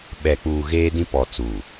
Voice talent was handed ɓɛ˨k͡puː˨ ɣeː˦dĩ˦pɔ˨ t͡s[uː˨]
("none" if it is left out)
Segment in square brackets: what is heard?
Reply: uː˨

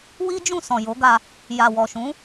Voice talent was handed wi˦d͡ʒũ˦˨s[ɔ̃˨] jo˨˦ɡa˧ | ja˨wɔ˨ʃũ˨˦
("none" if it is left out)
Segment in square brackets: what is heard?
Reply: ɔ̃˨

